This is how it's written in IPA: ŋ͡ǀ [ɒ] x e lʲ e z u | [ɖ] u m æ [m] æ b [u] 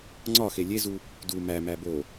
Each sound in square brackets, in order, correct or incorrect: correct, incorrect, correct, incorrect

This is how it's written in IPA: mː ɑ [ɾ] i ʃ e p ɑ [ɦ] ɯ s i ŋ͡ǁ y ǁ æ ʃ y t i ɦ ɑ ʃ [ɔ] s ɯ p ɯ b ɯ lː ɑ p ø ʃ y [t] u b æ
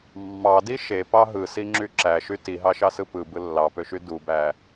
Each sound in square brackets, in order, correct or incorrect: incorrect, correct, incorrect, incorrect

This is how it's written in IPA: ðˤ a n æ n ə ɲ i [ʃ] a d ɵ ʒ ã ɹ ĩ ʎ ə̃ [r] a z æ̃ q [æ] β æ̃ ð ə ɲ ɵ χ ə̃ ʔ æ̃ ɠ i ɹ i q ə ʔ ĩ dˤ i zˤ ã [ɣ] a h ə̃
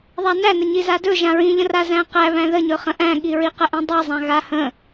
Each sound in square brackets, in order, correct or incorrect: incorrect, correct, correct, correct

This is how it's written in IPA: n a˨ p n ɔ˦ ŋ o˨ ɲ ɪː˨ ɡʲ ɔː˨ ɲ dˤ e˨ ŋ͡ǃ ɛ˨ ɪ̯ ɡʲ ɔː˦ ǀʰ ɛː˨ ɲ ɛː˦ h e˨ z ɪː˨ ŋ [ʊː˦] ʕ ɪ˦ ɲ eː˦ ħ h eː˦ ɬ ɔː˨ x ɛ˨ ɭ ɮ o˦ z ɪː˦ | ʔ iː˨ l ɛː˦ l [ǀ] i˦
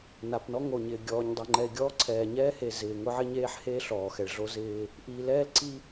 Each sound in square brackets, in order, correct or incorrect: incorrect, correct

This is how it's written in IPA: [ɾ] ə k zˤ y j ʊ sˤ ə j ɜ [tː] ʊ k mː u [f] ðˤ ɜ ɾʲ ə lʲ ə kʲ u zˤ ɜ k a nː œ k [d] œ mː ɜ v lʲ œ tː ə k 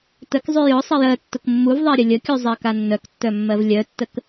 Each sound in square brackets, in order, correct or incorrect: incorrect, correct, incorrect, incorrect

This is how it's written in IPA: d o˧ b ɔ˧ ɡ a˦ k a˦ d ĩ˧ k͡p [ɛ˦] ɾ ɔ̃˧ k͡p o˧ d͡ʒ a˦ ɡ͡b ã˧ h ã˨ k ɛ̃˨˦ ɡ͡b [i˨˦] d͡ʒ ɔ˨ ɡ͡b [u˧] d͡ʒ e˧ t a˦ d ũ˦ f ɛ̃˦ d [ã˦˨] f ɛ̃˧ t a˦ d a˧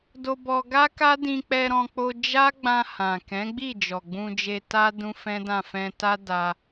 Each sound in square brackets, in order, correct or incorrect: incorrect, incorrect, incorrect, correct

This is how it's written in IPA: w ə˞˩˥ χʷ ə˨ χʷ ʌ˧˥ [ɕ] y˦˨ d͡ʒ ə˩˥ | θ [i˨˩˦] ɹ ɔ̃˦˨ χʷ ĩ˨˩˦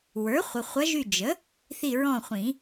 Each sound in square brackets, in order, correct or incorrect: incorrect, incorrect

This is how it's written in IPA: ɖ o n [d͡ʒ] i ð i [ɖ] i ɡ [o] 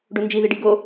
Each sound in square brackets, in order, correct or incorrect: correct, correct, correct

